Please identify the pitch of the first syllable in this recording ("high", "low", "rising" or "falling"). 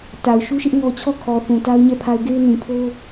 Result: low